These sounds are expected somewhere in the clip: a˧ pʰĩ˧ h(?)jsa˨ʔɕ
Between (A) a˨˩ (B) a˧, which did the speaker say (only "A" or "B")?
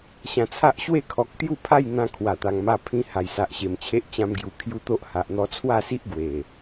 A